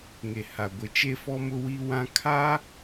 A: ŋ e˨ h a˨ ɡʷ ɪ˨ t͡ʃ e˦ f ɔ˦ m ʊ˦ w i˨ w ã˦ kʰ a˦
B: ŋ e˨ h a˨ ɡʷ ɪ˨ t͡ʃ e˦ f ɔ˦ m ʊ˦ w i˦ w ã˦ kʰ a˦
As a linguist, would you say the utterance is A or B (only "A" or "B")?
B